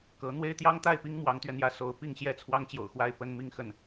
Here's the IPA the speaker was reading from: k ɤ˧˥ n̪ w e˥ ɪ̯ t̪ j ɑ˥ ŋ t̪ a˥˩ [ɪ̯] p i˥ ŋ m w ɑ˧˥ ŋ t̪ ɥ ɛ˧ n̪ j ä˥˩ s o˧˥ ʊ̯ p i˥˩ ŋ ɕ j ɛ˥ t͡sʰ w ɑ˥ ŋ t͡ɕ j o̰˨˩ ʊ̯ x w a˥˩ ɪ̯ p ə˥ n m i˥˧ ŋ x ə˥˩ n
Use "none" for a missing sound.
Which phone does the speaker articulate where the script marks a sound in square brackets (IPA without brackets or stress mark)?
ɪ̯